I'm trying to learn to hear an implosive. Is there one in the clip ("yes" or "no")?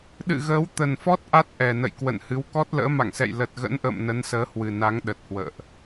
yes